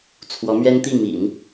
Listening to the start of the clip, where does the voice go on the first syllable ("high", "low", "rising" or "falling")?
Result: rising